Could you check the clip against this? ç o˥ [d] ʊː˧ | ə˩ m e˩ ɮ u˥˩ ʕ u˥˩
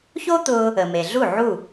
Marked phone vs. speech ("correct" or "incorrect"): incorrect